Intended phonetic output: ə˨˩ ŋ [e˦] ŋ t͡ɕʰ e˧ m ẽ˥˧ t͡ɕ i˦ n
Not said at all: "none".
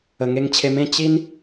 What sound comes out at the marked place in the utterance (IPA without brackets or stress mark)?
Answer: e˧